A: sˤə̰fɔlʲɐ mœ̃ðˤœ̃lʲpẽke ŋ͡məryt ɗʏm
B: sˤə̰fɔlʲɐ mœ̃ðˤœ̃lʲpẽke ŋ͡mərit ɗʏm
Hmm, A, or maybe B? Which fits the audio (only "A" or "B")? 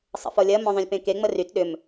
A